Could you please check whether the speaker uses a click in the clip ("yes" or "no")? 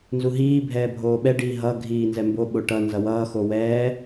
no